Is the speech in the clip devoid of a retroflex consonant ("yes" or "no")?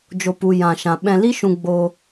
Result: yes